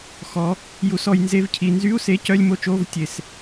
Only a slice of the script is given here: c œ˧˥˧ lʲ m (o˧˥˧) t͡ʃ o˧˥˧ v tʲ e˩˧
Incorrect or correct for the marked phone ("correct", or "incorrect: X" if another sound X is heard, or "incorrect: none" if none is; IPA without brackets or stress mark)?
correct